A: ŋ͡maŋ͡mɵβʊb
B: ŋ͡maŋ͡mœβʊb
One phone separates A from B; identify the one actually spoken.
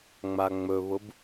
A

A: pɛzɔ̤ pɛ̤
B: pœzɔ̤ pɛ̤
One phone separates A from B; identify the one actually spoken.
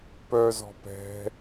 B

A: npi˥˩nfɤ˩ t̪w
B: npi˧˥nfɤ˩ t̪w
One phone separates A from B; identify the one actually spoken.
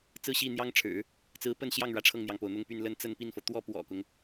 A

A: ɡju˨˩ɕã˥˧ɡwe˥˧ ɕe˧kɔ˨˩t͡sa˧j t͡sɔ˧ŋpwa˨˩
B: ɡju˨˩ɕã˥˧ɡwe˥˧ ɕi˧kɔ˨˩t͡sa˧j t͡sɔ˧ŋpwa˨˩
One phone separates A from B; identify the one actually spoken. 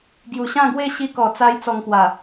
B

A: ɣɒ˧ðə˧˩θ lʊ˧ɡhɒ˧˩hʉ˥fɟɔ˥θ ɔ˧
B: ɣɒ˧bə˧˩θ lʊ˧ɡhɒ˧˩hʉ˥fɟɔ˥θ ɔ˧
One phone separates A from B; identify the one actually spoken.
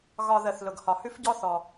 A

